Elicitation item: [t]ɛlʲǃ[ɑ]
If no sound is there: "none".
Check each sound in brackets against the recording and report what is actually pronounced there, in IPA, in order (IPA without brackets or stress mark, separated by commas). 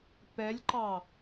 p, ɑ